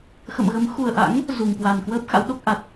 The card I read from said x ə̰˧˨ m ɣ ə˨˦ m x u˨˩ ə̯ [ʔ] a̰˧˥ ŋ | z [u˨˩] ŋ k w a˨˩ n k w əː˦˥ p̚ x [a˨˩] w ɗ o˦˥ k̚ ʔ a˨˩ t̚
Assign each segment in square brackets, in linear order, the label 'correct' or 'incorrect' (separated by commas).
correct, correct, incorrect